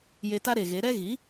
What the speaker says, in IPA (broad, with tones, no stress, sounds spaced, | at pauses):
j e˧ t a˦ ɾ e˨ ɣ e˨˦ ɾ ɛ˦ ɣ i˨˦